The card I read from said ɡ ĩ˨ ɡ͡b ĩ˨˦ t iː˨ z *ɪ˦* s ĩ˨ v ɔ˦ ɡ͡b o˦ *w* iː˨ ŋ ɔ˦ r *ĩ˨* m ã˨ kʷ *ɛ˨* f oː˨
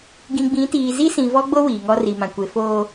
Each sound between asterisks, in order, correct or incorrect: incorrect: i˦, correct, incorrect: i˨, incorrect: e˨

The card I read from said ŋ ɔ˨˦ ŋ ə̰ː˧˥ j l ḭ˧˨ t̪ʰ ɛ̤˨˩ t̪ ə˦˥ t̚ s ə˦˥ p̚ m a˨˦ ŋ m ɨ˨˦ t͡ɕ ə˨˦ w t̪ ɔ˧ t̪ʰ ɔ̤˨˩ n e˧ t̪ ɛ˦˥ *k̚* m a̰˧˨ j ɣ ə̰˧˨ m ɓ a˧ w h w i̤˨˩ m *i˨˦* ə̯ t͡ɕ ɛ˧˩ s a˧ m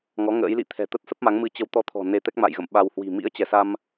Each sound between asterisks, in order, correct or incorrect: correct, incorrect: ḭ˧˥

